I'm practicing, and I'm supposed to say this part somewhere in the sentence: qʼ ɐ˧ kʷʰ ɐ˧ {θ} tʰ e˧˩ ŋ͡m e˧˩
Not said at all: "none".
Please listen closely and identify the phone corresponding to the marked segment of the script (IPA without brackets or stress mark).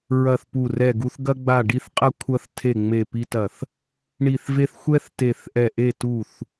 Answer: θ